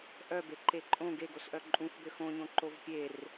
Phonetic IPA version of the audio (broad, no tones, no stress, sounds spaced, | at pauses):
ʔ œ b e ǃ e ǃʼ õ ɡ e ɡ o s ʔ œ ǃʼ ũ f b ø x õ ɲ õ ǃ o v pʲ e r